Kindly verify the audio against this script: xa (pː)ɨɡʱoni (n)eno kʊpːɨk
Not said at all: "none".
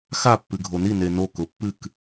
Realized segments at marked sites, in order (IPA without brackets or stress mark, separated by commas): pː, n